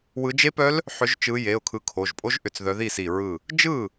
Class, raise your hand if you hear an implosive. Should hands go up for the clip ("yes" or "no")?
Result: no